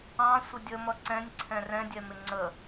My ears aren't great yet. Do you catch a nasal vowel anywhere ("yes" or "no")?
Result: yes